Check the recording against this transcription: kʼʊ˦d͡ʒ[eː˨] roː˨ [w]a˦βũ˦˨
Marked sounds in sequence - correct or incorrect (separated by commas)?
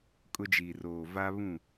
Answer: incorrect, incorrect